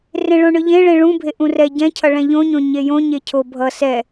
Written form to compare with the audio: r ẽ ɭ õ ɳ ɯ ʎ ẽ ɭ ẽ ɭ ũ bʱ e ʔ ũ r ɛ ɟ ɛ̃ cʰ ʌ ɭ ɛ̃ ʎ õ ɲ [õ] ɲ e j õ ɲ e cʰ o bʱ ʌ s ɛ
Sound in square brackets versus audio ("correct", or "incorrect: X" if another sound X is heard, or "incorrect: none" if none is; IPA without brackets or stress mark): correct